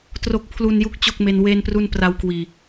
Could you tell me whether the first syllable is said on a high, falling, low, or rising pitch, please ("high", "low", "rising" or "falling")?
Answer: low